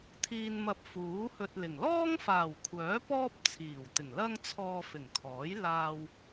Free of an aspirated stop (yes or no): no